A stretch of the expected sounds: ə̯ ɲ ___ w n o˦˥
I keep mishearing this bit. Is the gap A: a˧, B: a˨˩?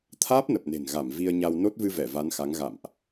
A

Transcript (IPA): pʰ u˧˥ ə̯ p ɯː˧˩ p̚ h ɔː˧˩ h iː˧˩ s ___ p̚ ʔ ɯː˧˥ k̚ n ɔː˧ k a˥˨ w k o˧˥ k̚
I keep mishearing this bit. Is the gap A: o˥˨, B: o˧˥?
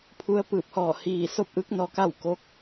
A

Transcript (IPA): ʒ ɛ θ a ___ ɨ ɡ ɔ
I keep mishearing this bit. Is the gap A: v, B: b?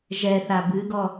B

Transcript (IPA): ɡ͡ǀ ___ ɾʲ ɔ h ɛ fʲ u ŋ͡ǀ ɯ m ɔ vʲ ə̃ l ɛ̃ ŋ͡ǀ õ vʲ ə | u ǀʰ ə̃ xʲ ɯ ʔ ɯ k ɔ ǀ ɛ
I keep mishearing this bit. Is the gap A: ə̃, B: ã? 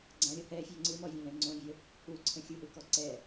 B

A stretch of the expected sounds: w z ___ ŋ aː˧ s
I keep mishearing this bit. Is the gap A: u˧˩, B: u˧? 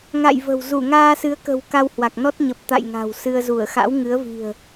A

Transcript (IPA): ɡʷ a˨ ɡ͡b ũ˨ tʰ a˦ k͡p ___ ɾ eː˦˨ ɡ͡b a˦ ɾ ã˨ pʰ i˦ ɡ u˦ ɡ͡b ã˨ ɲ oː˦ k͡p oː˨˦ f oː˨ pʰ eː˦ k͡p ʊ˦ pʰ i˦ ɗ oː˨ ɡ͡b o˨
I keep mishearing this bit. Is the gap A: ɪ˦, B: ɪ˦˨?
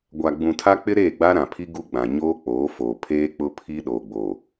A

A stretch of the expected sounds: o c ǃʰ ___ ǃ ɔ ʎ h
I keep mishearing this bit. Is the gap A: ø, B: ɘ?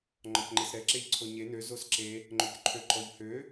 A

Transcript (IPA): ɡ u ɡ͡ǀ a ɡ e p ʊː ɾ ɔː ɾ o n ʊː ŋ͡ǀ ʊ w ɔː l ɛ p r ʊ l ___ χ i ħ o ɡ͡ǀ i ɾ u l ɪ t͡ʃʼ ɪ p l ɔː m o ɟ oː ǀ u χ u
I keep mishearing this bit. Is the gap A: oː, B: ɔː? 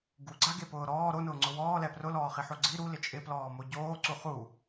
B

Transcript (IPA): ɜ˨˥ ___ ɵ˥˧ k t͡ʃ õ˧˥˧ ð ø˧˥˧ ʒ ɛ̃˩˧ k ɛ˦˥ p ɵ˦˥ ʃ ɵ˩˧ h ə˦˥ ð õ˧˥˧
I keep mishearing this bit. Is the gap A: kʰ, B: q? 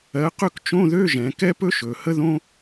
B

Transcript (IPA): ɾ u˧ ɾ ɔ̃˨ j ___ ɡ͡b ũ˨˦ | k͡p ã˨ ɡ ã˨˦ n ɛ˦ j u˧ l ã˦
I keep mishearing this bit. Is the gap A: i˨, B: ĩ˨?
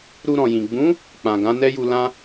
B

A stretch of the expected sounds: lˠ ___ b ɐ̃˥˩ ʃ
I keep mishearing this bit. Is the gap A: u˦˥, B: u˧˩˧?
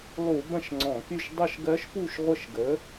B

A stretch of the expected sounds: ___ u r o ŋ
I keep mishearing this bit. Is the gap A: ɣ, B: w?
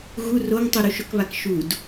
A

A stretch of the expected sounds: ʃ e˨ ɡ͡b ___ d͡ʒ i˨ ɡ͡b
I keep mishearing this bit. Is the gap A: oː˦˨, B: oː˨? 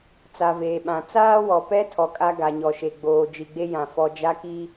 B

